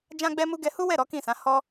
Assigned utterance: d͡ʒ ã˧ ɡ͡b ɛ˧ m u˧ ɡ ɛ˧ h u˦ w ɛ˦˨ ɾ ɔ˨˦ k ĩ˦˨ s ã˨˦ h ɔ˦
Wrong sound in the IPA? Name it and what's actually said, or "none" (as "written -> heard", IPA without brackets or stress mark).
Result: none